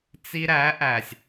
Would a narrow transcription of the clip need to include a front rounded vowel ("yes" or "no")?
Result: no